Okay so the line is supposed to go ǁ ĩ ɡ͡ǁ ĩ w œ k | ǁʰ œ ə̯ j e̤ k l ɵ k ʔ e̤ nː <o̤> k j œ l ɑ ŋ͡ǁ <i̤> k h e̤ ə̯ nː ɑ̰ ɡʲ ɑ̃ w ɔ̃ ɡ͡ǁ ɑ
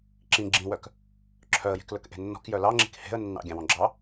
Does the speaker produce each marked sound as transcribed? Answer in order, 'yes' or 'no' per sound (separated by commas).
no, yes